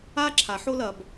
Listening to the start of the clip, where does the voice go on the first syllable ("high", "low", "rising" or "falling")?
high